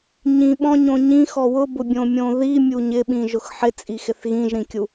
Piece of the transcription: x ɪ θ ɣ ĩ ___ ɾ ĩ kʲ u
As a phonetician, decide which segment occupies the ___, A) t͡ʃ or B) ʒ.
B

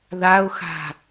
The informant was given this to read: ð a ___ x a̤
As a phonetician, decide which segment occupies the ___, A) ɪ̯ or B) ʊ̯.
B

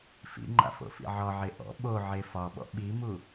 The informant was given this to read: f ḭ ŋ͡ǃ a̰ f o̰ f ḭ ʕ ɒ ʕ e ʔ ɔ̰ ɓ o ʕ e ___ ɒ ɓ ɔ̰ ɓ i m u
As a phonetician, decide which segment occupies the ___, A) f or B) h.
A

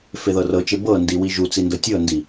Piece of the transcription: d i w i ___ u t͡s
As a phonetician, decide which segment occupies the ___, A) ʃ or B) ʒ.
B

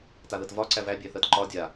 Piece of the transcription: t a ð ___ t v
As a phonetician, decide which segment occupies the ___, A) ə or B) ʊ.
A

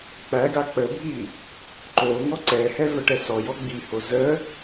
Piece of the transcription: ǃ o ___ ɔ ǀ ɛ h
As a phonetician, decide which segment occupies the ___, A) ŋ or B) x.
A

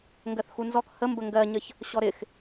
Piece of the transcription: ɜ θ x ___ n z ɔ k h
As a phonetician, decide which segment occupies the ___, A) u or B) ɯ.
A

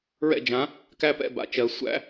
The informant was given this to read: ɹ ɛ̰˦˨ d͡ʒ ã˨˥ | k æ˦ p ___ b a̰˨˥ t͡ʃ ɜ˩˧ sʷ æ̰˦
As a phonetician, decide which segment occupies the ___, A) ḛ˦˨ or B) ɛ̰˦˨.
B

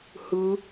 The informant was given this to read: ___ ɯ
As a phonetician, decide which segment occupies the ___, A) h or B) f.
A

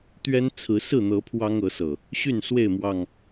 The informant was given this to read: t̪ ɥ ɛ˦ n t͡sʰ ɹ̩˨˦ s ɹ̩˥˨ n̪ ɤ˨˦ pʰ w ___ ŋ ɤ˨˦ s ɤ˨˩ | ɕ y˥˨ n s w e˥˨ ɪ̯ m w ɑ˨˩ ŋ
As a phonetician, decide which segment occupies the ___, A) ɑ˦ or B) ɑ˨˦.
A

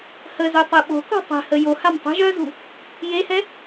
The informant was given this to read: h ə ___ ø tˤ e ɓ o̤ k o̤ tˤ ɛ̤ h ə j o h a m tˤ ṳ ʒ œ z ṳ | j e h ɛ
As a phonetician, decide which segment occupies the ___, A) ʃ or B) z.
B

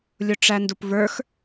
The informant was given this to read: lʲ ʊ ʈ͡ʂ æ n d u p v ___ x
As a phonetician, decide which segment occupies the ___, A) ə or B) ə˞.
B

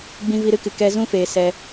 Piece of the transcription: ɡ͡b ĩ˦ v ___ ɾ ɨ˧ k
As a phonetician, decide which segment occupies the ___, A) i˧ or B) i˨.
A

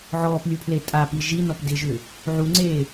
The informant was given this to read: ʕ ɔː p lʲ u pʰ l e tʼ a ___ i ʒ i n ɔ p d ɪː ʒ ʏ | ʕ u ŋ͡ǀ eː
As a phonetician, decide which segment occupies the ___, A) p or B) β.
A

